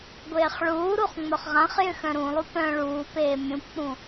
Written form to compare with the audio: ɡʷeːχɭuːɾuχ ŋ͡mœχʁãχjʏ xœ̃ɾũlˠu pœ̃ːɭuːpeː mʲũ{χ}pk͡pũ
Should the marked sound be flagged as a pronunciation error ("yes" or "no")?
yes